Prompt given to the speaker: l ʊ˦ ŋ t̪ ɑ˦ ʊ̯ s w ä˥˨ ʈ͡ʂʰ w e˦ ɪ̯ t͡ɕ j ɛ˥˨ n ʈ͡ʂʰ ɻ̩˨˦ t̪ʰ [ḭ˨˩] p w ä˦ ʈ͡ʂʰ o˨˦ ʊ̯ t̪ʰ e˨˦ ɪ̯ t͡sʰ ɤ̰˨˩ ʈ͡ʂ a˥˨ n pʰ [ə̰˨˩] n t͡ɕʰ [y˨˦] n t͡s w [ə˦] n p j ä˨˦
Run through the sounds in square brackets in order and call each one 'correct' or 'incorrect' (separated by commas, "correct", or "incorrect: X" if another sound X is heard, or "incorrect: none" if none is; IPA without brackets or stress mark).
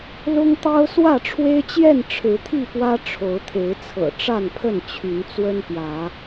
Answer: incorrect: i˥˨, incorrect: ə˥˨, correct, correct